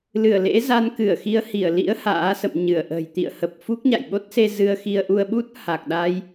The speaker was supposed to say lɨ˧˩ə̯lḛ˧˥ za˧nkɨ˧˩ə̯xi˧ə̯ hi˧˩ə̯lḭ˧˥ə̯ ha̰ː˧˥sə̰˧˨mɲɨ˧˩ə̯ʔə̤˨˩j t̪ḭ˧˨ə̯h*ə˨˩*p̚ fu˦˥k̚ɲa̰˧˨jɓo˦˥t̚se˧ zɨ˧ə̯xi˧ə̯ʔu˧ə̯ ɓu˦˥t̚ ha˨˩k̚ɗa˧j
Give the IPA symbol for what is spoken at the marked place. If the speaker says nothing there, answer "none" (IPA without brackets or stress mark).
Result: ə˨˩